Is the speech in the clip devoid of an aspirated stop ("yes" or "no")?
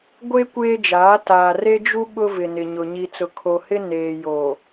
no